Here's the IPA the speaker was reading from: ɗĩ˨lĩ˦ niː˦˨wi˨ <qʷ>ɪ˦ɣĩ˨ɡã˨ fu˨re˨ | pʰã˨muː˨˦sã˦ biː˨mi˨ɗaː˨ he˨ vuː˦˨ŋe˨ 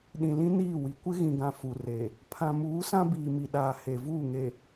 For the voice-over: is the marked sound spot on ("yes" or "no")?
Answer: no